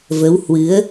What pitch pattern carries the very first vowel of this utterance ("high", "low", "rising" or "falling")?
rising